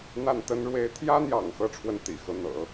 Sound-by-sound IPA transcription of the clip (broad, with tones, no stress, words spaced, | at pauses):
n̪a˥˩nt̪ə˥n ɻwe˧˥ɪ̯t̪ʰjä˥n̪jɑ̰˨˩ŋ xɤ˥˧ʈ͡ʂʰwə˥˩n t̪ḭ˨˩ xɤ˧˥n̪ɤ̰˨˩˦